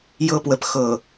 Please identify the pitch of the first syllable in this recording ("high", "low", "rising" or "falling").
high